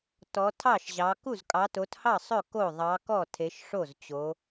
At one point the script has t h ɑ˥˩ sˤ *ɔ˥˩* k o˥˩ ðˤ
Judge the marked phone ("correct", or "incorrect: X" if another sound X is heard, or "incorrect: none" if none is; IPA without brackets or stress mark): incorrect: ɵ˥˩